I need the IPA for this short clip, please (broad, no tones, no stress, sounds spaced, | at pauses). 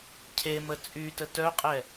cʰ e m ə t͡sʼ y t ə t œ qʼ ɛ